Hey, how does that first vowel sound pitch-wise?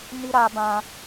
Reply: high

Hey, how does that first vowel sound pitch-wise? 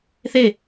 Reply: falling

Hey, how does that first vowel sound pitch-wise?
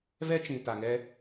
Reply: high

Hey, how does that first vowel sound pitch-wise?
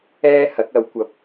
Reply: high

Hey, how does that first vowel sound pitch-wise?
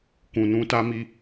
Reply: low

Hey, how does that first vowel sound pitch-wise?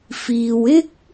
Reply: low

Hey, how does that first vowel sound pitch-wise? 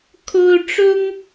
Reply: high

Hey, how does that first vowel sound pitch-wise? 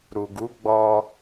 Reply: low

